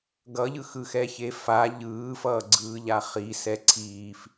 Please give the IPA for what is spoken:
ɡʌʎɯxɯxɛ çefa ʎɯːfʌːɡ͡ǀɯːʎa χisɛ ǀʰiːf

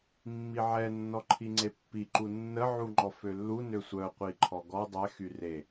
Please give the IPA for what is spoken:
mːiʕɛ nːɔǃʰiŋ͡ǀepːi ǃunːə ʕuŋ͡ǃɔfølːu nøsʷœ qʷiǃʰɔɡɔ dˤɛ xyre

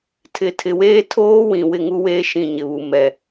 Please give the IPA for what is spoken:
tʰɪ˨tʰɪ˨weː˦ tʰoː˦ wĩ˨ wɪ˦˨ŋu˦weː˦ ʃĩ˦˨ɲɪ˨βu˨ mɛ˨

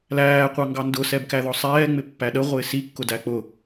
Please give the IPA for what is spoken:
læː qʷɑŋɡɑndʊ sɛbkæðɔsˤɛː ŋ͡mɪpːæɗə ʁʷɪːsi kːʊdæk͡pʊ

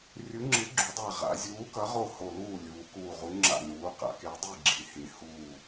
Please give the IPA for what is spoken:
rʲɯ˨˥ŋ͡ǁɯ˨˥ɡ͡ǁu˩˧dˤa˧˩ ʁa̰˩˧zʲuː˨˥kʌ˨˥ ʁo˥˩ho˧˩luː˥˩ lʲuː˩˧kuː˧˩ʁu˨˥ ŋ͡ǁa̰˧˩nuː˩˧qa̰˩˧ ke˨˥dˤi˥˩ɡ͡ǁi˩˧hĩ˩˧ huː˧˩

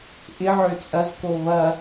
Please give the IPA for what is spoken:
ʔɪʕø t͡sʼɐzko βɐ

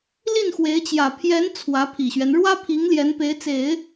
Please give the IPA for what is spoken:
li˥˩nxwe˧˥ɪ̯t͡ɕjä˨˩ pʰjɛ˧˥n t͡sʰwä˧˥pʰi˨˩ɕɥɛ˦n ɻwä˥pʰi˧˥ŋ ljɛ˧˥npe˧˥ɪ̯t͡se˨˩˦ɪ̯

